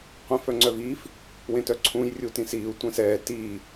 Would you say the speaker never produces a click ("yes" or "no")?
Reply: no